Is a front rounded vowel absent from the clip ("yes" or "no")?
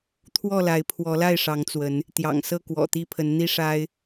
yes